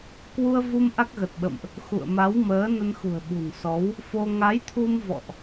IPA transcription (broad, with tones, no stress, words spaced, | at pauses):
kwu˧ə̯vu˧m ʔa˦˥k̚ɣə˨˩t̚ɓə̰˧˨mʔ | xṵ˧˨ə̯ma˨˦wməː˨˦ nə˧nxṳ˨˩ə̯ɓṳ˨˩nsɔ˨˦w | fo˧ ŋa˨˦jt̪ʰu˧m vɔ̰˧˨ʔ